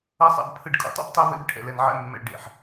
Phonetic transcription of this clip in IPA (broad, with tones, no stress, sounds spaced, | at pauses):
ʌ˨˦ sˤ a̰˨ b pʰ ɯ˨ ɖ kʼ ṵ˨ tˤ ṵ˦ b tˤ ɛ˦ v ḛ˦ b ʈʰ ɛ̰˨ l ɛ˨ n ʕ ɛ̰˦ mː ɛ̰˨ ɭ ɖ ḛ˨ ħ